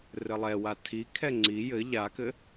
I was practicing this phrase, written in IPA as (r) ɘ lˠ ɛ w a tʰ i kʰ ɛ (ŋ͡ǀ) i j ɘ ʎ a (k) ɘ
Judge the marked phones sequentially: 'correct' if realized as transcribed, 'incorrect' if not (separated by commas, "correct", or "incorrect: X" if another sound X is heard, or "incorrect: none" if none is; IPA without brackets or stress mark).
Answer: correct, correct, correct